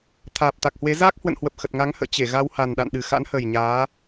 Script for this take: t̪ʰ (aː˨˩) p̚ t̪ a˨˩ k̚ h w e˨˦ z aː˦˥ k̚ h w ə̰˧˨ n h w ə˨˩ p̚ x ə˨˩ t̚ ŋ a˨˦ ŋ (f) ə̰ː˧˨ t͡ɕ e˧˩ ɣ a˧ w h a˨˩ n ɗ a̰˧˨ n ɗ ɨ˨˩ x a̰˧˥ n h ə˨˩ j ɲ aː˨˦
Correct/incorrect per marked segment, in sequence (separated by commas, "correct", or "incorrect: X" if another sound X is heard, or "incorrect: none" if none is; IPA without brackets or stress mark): correct, incorrect: h